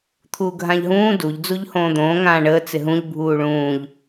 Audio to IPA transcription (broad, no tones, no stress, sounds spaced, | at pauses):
t̪ʰ uː ɡʱ ã ʎ ɦ ũː d u ʎ d͡z u ʎ h õː d̪ õː ŋ ãː ɳ əː t͡s ɪ ɦ ũ ʎ bʱ uː ɭ ũː ʎ